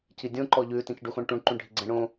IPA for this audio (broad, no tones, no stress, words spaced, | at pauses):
cidʲõ ǃɔʎʉ tĩcɖuxõɳʈũɳ ǃũɳɖʱiɡ͡ǀɛ̃ɳõ